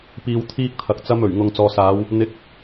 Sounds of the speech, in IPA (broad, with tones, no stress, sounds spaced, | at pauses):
p iː˧ w t̪ʰ iː˥ k̚ t̪ʰ ɐ˨ k̚ t͡s ɐ˧ m ɵ˨˩ ɥ ŋ ʊ˨ ŋ t͡s ɔː˨ s aː˨˧ w | n̪ ɪ˨˥ k̚